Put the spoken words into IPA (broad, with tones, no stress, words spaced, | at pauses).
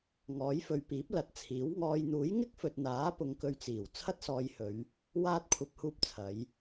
ŋɔː˨˥jfɵ˧ɥ piː˨˥p̚lɐ˨˥t̚t͡sʰiː˨˥w ŋɔː˨jn̪uː˨˥j ŋɪ˥k̚fɵ˨t̚n̪aː˨˥pʊ˨˧ŋ kɵ˧ɥt͡siː˨˩w t͡sʰɐ˥t̚sɔː˧jhɵ˨˧ɥ | waː˧t̚kʷʰɐ˨p̚huː˧p̚ t͡sʰɐ˨˧j